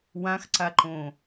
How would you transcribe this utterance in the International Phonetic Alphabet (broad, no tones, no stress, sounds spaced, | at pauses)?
w ã x ǀ a ǃ õː